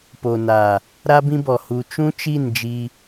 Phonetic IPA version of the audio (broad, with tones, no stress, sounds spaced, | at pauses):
p o˨ n a˨ | ɾ a˦ b ĩ˦ b ɔ˨ h u˨ t͡ʃ ũ˦ t͡ʃ i˦˨ n d͡ʒ i˦